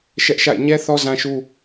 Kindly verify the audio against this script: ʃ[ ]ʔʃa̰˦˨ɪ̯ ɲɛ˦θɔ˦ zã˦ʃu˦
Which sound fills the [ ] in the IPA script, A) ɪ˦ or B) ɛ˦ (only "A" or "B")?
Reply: B